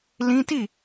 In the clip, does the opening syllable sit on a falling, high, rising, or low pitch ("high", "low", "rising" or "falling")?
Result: high